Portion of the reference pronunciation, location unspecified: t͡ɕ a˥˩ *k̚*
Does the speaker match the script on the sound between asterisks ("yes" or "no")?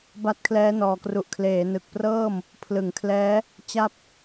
no